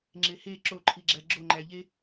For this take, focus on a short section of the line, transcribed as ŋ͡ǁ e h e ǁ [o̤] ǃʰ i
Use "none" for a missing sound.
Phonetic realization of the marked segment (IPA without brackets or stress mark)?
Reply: o